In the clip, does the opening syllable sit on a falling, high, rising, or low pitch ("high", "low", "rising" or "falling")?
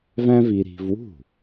high